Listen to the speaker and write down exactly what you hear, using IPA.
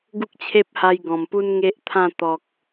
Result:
ɡ u˦ k̚ t͡ɕʰ e˦ p̚ h a˧ j ɡ ɔ̃˨˩ m p u˦ n ŋ e˦ ʔ t̪ʰ ã˥˧ t̪ ɔ˨ k̚

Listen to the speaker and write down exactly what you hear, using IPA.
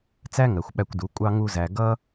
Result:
t͡s æ˦ ŋ ɜ˨ xʷ ɓ æ˧ kʷ d u˨˦ kʷʼ ɑ˦ ŋ u˦ z æ˧ ɡ ʌ˦

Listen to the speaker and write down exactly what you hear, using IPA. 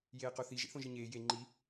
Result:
j eː q o θ i ʒ ḛ θ õ ʒ i ɲ eː j e ŋ͡ǃ i

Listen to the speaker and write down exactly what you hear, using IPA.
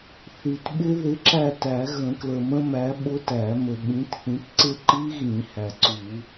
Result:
θ i˨ t ɓ ɪ˦˥ ð ɪ˨˥ ǁ æ˦˨ t æ˨˩˦ ɣ ə̃˨˩˦ k l ə˨ m ə̃˦˥ m æ˨˥ ɓ ʊ˦˥ t æ˨˩˦ m ə˨ ɓ ĩ˨˥ t θ ĩ˨˥ t ǀ ɪ˦˥ ǃ i˦˥ ɣ ĩ˨˩˦ h æ˨ ǀ u˨˩˦

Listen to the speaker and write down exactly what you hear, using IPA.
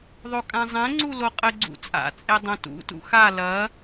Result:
ðˤ o kʼ ã zˤ ɛ̃ ŋ͡ǀ u l o qʼ ɘ ɡ͡ǀ ṵ t͡sʼ a̰ t͡sʼ e dˤ õ t ṵ t ṵ x a l ɐ

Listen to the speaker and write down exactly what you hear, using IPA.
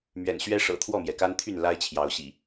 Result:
m ɥ ɛ̰˨˩ n ɕ ɥ ɛ˦ ʂ ɤ̰˨˩ t̪ʰ w ɔ˥˨ m j ɛ˩ k a˦ n t̪ʰ y˥˨ n l a˦ ɪ̯ t͡ɕʰ j ɑ˨˦ ʊ̯ ɕ ḭ˨˩

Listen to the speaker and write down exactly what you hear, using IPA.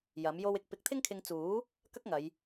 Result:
j ɐ˨˥ m j o˥ w ɪ˥ k̚ p ɪ˨˥ k̚ t̪ʰ ɪ˥ ŋ kʰ ɪ˧ ŋ t͡s uː˨˥ | k ɐ˥ k̚ ŋ ɐ˨˧ j

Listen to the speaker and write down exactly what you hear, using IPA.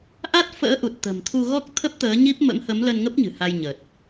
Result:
ʔ a˦˥ t̚ f ə̰ː˧˥ ʔ u˨˩ t̚ t̪ ə̤˨˩ m t̪ʰ u˧ ɣ ɔ˦˥ k̚ t̪ʰ ə˦˥ p̚ t̪ əː˨˦ ɲ i˦˥ p̚ m ə̰˧˥ m h ə˨˦ m l ə˧ n ŋ ə˦˥ p̚ ɲ ɨ̤˨˩ h a˧ j ɲ əː˨˩ t̚

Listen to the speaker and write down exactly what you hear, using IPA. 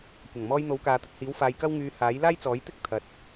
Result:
kʷ ɐ˨˩ ŋ m ɔː˧ j n̪ o˨˥ w k aː˨ t̪ ɐ˨ t̚ h iː˨˥ w f aː˧ j k ɐ˥ w ŋ yː˧ h aː˨˥ j l aː˥ j t͡s ɔː˨˥ j t̪ ɪ˥ k̚ t̪ʰ ɐ˨ t̚

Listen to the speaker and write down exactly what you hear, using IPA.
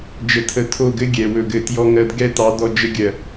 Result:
d͡ʒ ə˨ tʰ ə˨ tʰ o˦˨ ɡ ɘ˦ ɡʲ ɛ˨ w ɵ˦˨ ɡ ɘ˦˨ t j ɔ˦ ŋ ɜ˦ d ɡ ɛ˦ t ɑ˨˦ d ɔ˦ d͡ʒ ə˦ ɡʲ ɜ˨

